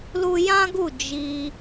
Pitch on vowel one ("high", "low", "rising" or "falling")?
high